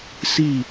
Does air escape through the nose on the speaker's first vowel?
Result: no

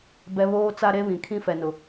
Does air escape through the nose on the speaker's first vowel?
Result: no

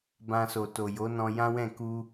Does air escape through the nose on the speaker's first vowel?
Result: yes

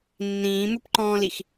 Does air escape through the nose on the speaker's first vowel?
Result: yes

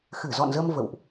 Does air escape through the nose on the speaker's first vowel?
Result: no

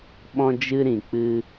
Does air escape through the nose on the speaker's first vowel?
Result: yes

